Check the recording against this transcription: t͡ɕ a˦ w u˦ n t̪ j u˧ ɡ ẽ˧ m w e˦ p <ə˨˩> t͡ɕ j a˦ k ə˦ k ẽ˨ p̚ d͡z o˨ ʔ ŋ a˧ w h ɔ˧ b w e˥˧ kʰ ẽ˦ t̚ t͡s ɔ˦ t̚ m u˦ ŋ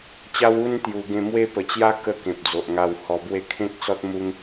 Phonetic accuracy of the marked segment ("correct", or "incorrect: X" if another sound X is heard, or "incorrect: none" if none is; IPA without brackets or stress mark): correct